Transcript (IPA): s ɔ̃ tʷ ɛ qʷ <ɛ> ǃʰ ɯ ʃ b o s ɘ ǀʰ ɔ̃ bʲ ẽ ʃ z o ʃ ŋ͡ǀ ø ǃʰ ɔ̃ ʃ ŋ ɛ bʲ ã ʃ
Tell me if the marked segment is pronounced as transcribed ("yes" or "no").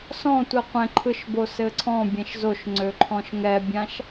no